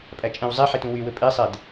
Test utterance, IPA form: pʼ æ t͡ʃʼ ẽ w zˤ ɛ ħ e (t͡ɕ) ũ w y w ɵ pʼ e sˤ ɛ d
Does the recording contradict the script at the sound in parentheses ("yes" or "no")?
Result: yes